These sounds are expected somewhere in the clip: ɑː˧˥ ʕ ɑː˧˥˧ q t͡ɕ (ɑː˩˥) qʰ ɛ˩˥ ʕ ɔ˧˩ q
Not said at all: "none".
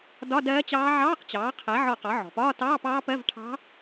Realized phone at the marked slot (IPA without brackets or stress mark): ɑː˩˥